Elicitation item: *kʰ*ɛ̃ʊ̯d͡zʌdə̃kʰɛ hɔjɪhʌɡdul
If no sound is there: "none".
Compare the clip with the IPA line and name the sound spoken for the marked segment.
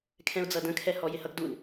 kʰ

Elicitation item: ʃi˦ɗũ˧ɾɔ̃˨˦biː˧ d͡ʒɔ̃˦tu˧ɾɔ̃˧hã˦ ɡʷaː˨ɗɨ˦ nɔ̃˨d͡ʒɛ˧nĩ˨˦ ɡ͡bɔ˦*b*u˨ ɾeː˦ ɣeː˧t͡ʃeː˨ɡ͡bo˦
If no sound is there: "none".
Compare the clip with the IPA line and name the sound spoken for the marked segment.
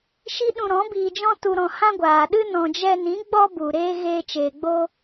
b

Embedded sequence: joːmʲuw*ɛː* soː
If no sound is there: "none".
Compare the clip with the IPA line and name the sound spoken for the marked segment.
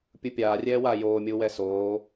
ɛ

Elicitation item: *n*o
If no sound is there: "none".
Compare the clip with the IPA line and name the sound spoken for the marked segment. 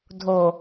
dʱ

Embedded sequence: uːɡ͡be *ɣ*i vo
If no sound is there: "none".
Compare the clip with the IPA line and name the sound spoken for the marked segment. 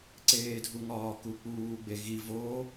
ɣ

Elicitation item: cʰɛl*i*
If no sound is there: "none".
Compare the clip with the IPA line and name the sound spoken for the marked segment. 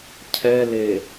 e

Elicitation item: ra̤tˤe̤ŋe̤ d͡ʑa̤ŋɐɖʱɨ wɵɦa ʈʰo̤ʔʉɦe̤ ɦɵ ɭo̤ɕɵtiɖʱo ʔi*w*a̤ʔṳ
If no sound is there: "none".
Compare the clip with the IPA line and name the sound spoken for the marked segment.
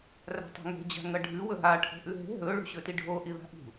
ð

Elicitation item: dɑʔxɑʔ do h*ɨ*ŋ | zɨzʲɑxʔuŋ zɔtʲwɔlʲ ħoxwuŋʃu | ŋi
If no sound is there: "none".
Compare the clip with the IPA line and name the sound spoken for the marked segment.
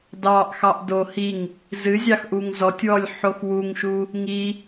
i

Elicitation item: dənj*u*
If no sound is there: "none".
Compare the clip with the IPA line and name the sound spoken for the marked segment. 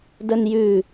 ʉ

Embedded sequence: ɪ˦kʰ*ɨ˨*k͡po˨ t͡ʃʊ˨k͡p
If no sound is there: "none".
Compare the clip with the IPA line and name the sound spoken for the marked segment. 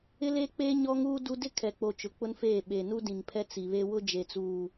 ɛ˨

